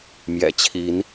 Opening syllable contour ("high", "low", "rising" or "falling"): low